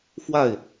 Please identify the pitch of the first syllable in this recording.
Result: falling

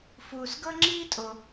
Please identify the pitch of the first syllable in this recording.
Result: low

